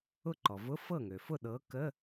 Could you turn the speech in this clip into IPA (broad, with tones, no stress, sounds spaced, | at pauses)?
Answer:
ʊ˥˩ ǃ ɔ˩ v ʊ˧˥˧ f ɤ˥˩ ŋ ø˩ f ʊ˥˩ ɗ ɤ˨˥ k ə˧˥˧